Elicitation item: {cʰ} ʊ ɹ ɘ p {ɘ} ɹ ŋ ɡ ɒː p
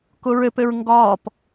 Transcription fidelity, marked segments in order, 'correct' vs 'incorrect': incorrect: k, correct

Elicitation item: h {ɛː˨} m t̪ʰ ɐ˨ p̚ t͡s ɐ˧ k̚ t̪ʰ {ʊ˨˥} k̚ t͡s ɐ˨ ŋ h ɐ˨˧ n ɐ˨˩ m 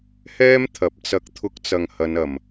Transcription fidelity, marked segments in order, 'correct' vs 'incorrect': incorrect: ɛː˥, correct

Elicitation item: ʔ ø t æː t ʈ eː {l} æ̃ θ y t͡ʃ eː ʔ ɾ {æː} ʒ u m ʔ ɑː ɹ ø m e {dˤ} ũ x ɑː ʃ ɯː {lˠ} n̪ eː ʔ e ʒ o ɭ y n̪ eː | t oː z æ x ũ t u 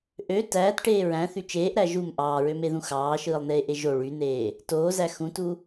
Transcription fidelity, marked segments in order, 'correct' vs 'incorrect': incorrect: ɹ, incorrect: æ, incorrect: ð, correct

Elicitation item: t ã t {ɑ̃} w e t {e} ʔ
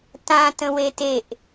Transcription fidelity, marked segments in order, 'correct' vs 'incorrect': incorrect: ə̃, correct

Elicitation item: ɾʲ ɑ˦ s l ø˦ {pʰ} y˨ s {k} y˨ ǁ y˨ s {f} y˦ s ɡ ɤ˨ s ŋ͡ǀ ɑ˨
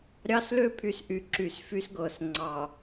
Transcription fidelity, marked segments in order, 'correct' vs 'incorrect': correct, incorrect: ʔ, correct

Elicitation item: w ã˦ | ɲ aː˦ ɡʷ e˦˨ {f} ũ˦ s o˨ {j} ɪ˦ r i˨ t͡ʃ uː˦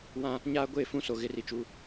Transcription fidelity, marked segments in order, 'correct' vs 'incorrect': correct, incorrect: ɣ

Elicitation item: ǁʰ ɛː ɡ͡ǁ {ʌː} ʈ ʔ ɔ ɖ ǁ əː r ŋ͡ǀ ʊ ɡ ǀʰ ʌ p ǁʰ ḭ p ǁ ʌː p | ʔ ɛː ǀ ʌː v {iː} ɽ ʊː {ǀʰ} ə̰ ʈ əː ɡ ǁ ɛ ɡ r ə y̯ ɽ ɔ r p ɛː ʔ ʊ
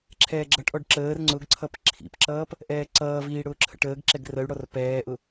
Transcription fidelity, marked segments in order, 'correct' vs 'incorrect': incorrect: ʌ, correct, incorrect: ǁʰ

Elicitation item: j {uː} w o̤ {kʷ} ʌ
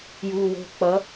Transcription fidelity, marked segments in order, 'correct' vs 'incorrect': correct, incorrect: k͡p

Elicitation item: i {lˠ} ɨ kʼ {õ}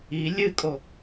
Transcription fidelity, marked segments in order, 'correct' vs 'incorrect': incorrect: lʲ, incorrect: o

